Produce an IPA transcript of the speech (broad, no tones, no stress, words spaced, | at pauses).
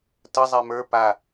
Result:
tə zˤɛmə˞ pa